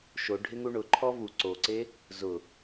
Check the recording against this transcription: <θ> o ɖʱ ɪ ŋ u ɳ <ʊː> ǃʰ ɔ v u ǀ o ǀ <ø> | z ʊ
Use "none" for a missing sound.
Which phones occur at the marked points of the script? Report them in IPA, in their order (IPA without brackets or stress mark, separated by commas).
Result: ʃ, ʊ, e